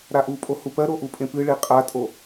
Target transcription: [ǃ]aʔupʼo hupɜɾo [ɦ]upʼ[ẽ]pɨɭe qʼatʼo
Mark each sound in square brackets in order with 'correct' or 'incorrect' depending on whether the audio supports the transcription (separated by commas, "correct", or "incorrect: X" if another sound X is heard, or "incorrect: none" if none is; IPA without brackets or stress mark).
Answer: incorrect: ɾ, incorrect: ʔ, correct